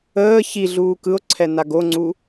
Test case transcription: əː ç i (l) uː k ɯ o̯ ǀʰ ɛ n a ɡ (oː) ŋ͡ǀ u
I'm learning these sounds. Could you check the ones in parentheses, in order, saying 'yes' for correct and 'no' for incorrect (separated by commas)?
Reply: no, no